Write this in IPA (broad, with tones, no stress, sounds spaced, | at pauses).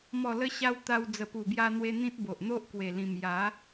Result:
m ɔ˨˩ l ə˧ ɕ a˧ w t̪ a˧ w d͡z ə˨˩ p u˨˩ b j a˧ n̪ w e˧ n̪ ĩ˦ t̚ b o˨ ʔ n̪ o˦ ʔ k w e˨˩ l ĩ˨˩ m j a˨˦